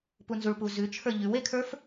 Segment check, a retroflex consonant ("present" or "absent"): present